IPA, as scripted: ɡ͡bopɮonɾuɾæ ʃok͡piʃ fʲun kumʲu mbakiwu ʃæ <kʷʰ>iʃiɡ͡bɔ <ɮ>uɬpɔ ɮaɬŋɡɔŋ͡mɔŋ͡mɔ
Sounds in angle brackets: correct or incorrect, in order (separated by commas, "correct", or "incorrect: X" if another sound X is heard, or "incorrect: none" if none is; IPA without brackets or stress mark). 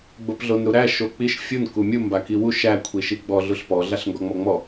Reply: correct, correct